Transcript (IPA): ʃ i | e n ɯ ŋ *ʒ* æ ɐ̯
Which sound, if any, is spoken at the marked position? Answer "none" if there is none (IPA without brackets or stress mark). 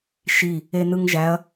ʒ